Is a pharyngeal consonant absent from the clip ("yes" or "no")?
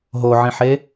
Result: no